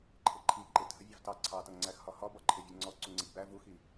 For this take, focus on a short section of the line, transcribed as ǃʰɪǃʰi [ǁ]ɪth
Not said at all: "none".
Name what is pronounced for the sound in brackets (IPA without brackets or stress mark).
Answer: ǃ